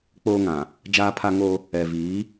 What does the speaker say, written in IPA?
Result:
k͡p oː˦ ŋ ã˨ | d͡ʒ aː˦ pʰ a˦ ŋ o˦ | ɛ˨ v iː˨˦

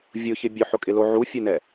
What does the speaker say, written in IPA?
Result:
vʲ ʊ ç ɪ bʲ ʊ ħ ʊ kʼ ɪ l o ʕ u fʲ e n ɛ

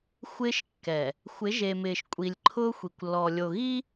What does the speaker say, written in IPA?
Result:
xʷ ɪː˦ ʃ kː ɛ˨ | xʷ ɪ˨˦ ʒ e˨ m ɪː˨ ʃ kʷʼ i˨ lʲ ǃʰ ʊː˦ xʷ i˨ kʷ lː ɔ˨ lʲ o˨ ɣ i˦

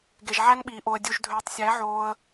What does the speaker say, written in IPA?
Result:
ɡ e˨ ʒ ʕ æ˧ n ɓ iː˨ ʔ o˨ ə̯ dʲ u˨ ʒ dʱ øː˨ tˤ sʲ æ˨˦ ʕ oː˧ ə̯

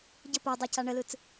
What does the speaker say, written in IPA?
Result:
ɟ ə p o dˤ a c a ɳ ə l ɯ t͡s

